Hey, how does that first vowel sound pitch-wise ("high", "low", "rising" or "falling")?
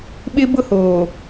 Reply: high